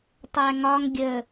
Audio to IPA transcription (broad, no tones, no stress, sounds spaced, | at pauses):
tˤ æ ŋ ɒ ŋ ɡʲ ə